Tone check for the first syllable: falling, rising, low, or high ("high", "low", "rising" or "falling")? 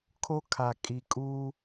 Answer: high